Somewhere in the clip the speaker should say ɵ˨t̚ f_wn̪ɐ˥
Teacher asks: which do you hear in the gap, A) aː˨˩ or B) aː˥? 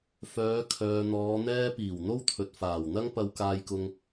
A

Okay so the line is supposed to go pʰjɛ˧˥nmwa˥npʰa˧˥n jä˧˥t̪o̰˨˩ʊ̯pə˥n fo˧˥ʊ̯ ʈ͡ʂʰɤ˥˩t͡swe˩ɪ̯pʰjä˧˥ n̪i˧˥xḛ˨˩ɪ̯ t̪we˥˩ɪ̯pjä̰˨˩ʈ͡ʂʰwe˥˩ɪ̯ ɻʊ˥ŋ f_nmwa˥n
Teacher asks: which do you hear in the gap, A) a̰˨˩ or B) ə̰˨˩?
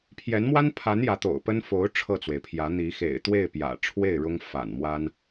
A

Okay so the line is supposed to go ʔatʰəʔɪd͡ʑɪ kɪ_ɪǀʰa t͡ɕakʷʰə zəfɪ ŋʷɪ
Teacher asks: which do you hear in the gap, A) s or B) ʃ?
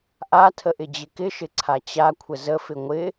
B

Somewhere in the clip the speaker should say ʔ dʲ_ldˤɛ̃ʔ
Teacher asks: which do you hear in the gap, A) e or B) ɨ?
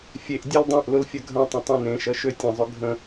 A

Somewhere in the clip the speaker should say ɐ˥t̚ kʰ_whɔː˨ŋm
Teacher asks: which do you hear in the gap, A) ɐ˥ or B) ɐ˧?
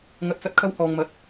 A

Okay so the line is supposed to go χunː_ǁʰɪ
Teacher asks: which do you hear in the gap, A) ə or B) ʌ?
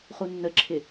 A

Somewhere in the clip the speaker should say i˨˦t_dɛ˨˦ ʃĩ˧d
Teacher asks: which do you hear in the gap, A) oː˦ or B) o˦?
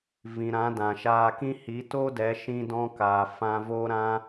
B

